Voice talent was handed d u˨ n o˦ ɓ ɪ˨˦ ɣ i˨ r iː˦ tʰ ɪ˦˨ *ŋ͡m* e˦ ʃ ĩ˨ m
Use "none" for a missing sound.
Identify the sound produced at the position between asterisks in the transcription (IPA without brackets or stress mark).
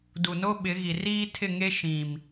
ŋ